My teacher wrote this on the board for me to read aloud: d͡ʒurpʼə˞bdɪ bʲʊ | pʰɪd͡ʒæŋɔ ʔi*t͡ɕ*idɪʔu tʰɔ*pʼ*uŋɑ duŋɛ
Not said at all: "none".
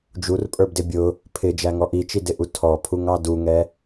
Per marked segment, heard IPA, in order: t͡ʃ, pʰ

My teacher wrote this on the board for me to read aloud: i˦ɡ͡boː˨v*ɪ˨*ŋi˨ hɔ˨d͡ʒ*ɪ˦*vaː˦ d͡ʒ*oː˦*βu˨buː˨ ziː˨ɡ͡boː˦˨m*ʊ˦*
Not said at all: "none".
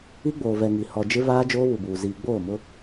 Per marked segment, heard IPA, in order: ɛ˨, ɪ˦, oː˦, ʊ˦

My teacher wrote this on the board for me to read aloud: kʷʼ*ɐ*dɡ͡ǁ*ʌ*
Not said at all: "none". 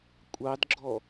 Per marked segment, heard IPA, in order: ɑ, ɔ

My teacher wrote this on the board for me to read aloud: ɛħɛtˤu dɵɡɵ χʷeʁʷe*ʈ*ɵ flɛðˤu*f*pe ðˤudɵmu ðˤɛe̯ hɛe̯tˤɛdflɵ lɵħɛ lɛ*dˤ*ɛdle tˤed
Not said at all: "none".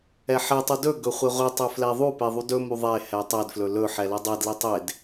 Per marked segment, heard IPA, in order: tˤ, none, dˤ

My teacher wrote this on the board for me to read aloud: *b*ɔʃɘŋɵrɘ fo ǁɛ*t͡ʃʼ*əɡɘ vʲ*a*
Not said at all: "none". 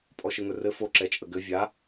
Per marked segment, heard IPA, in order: pʼ, t͡ʃʼ, a

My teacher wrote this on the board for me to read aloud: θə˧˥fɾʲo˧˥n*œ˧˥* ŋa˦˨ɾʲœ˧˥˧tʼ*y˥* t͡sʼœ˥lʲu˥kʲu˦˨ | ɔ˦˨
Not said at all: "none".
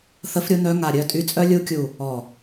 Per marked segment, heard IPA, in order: œ˧˥, y˥

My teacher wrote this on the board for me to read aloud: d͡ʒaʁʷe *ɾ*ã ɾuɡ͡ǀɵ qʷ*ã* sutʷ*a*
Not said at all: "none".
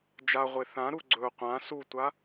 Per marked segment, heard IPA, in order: θ, ã, a

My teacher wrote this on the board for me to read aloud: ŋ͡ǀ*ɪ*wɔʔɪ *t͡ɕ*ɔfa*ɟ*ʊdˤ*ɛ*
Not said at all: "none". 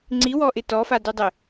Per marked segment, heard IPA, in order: i, t, d, ɪ

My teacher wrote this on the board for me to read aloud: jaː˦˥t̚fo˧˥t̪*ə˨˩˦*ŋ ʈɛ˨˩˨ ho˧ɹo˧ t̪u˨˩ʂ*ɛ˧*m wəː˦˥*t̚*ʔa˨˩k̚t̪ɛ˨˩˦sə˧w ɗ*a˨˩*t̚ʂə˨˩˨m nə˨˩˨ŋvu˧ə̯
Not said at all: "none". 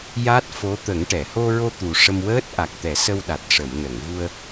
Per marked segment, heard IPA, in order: ə˨˩˦, ə˧, t̚, a˨˩

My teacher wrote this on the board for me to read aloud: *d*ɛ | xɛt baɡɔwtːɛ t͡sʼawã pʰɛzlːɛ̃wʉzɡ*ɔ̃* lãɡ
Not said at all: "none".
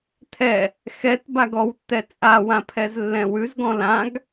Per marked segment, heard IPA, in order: tʰ, ɔ̃

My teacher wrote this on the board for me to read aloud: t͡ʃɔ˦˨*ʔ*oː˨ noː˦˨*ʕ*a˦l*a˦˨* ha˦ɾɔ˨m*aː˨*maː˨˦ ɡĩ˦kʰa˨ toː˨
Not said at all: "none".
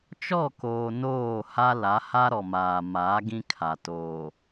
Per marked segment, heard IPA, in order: k, h, a˨˦, aː˨

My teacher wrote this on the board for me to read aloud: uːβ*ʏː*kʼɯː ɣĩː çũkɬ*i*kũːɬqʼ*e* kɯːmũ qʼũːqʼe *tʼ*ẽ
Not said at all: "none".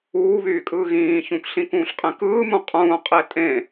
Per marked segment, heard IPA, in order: yː, ĩ, ẽ, tʼ

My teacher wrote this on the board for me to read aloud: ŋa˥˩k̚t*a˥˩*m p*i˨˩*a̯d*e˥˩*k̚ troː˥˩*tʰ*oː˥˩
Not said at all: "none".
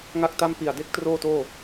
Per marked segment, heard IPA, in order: a˥˩, i˨˩, e˦˥, t

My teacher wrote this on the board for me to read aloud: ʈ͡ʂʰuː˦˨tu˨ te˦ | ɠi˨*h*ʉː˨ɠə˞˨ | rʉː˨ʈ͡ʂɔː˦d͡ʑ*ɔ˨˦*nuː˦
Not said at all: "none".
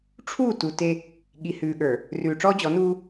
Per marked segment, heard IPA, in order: h, ɔ˨˦

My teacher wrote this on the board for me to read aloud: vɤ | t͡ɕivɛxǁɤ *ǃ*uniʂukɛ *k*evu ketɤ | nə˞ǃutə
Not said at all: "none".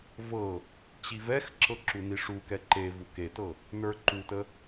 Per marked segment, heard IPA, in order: ǁ, ǃ

